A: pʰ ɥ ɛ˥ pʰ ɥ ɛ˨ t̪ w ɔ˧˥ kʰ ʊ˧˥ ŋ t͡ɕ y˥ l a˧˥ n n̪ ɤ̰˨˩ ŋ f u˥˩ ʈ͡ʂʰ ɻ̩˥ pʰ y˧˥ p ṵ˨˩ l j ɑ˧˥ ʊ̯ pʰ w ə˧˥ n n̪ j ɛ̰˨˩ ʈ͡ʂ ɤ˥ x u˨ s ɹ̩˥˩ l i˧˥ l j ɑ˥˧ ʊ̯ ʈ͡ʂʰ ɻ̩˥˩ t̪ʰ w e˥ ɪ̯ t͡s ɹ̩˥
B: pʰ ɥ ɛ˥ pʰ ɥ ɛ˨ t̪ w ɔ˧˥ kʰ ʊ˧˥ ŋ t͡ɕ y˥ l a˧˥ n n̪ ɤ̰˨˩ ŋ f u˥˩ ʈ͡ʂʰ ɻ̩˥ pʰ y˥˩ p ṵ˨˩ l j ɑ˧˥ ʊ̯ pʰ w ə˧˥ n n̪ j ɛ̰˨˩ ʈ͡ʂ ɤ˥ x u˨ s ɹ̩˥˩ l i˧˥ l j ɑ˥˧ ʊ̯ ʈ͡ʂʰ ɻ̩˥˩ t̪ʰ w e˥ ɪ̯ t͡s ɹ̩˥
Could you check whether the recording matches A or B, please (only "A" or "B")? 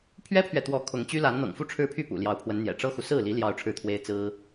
B